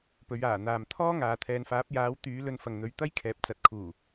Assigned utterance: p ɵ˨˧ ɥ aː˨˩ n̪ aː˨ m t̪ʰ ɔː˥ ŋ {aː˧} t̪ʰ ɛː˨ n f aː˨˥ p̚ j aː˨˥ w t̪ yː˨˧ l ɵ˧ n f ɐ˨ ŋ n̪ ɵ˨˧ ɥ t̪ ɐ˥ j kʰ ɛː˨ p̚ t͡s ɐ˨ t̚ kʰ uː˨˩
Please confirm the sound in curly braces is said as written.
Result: no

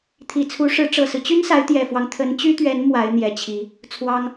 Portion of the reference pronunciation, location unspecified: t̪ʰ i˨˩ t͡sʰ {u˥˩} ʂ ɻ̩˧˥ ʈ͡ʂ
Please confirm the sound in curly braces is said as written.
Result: no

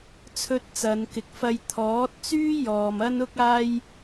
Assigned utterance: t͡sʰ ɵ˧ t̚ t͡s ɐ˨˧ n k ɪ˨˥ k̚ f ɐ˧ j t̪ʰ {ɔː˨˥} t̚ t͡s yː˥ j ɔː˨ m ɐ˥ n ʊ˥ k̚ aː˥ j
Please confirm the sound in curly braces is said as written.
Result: yes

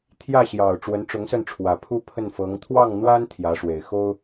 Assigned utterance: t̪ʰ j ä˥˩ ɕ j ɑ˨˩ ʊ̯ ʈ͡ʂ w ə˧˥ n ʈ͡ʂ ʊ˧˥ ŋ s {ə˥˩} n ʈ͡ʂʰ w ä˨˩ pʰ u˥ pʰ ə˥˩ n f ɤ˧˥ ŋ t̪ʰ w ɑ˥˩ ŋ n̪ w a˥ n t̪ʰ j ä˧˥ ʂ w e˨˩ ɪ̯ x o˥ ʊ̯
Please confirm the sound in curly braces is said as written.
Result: yes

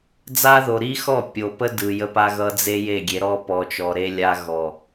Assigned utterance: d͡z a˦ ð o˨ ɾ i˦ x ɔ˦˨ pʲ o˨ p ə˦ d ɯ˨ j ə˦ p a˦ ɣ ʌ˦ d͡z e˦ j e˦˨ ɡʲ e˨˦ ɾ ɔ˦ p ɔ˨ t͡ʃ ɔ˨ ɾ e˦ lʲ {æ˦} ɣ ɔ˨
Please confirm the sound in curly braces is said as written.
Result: no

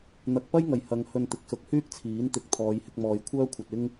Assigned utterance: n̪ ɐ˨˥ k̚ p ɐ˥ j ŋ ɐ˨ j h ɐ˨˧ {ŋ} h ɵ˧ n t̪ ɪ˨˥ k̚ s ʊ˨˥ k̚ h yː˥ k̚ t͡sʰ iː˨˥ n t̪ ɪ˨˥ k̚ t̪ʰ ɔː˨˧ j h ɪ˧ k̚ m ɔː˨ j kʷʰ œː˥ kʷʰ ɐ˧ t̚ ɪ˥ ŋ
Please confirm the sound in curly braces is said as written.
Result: yes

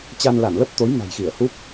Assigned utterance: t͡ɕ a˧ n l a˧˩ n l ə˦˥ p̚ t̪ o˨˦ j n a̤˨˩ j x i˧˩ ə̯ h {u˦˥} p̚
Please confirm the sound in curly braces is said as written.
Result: yes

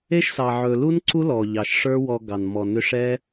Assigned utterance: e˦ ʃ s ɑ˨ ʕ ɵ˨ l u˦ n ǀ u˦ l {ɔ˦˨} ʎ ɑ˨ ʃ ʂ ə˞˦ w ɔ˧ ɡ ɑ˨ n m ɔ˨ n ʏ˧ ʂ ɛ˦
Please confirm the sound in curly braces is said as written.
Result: no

